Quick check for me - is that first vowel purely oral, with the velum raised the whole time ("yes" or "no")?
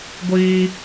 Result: yes